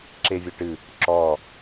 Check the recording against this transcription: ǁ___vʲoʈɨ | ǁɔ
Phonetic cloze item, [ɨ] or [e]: e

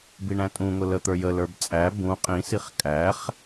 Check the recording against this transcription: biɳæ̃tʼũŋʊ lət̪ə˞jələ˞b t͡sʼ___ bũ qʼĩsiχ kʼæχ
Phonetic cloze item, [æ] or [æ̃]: æ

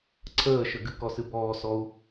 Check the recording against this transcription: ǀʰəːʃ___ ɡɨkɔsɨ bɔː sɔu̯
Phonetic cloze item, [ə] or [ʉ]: ə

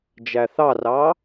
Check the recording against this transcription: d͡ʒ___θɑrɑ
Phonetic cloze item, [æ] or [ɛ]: æ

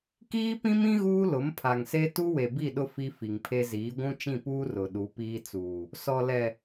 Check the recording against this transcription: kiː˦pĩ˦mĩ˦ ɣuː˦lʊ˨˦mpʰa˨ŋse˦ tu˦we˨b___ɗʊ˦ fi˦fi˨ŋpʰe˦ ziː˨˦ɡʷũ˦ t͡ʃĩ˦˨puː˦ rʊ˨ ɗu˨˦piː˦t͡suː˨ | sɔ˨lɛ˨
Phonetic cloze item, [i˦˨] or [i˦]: i˦˨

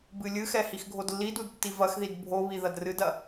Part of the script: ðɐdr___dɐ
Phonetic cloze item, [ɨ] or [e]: ɨ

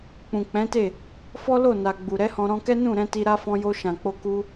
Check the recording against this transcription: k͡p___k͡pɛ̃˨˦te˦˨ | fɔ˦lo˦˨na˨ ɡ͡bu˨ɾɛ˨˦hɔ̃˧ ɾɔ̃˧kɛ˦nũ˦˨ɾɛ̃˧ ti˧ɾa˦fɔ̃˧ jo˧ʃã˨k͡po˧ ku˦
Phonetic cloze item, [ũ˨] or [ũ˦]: ũ˨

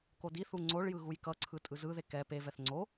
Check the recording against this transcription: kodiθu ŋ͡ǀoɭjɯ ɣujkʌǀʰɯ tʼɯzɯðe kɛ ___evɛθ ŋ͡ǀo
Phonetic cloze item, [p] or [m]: p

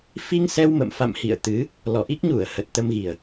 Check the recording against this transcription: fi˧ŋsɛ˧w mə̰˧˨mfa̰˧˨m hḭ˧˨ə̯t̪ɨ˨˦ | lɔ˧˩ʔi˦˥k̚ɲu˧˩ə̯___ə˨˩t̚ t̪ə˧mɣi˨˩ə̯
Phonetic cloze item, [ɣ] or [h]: h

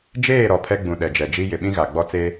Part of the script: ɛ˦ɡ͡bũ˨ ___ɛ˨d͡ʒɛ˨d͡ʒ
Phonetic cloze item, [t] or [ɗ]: ɗ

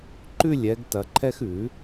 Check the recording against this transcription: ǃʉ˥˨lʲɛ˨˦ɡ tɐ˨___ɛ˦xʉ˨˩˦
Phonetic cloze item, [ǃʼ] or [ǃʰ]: ǃʰ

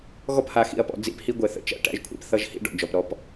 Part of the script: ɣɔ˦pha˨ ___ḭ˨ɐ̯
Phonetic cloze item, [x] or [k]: x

